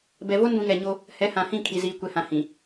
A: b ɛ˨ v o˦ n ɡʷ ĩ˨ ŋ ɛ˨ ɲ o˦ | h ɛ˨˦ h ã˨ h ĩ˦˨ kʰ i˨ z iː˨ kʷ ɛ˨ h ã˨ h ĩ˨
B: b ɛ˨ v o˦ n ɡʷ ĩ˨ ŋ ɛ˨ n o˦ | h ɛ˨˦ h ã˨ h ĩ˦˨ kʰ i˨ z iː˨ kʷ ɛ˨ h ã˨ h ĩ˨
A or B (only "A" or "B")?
A